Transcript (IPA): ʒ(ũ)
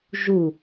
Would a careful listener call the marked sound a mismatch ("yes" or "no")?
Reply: yes